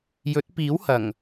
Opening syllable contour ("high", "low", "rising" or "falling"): rising